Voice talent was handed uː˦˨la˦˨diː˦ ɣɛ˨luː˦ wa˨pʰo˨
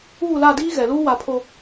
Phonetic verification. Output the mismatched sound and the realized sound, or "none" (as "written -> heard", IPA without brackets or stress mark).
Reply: none